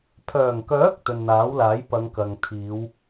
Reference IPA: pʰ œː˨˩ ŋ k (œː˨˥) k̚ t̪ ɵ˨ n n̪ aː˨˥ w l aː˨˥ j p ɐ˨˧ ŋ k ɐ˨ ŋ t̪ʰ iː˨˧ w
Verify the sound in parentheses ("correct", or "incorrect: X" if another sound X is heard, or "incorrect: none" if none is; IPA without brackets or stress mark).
correct